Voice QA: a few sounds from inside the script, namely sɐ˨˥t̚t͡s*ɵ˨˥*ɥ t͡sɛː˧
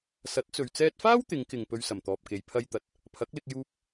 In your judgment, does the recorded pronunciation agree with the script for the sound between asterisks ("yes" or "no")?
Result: no